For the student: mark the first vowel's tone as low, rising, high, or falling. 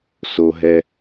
high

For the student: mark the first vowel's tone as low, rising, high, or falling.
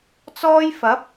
high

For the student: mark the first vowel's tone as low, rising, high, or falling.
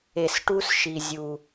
low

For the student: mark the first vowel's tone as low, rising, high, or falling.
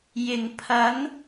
low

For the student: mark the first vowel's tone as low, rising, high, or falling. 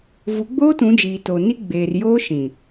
rising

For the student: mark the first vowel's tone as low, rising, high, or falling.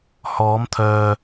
rising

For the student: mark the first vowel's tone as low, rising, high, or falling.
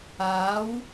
rising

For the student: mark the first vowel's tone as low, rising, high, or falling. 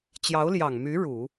rising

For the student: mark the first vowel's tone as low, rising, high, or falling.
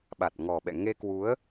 low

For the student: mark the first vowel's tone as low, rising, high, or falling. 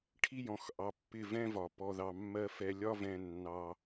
high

